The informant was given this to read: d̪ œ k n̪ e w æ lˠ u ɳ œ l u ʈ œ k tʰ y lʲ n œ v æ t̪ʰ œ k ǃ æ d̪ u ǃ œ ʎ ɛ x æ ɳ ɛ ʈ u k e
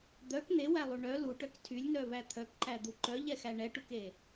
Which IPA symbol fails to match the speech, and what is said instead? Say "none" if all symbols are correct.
none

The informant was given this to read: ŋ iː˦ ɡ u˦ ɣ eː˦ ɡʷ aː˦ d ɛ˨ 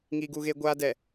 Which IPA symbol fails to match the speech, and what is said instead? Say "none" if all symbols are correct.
none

